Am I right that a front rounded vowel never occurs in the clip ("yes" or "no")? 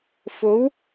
yes